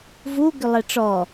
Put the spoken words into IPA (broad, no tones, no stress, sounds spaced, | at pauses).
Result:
v u ɡ ʏ lˠ ɛ ʈ͡ʂ ɔ